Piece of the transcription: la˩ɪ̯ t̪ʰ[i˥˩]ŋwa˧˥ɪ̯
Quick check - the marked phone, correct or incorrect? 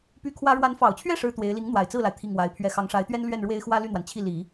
correct